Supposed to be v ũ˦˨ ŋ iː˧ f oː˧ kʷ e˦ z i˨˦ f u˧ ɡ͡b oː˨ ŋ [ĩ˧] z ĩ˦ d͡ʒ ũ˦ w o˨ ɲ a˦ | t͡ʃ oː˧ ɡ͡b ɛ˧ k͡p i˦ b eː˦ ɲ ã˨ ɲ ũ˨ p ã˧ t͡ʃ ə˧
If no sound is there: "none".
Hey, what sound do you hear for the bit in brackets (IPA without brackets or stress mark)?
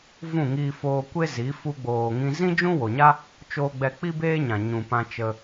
ĩ˧